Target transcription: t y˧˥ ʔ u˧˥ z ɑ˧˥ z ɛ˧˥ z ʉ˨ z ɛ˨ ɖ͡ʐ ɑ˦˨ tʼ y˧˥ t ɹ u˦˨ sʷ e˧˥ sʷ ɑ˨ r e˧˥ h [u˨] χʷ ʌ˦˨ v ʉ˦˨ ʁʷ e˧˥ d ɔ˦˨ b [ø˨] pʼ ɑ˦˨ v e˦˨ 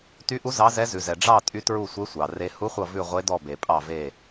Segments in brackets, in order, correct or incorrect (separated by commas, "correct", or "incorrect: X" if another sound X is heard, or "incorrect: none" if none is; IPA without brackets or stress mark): incorrect: u˧˥, incorrect: e˨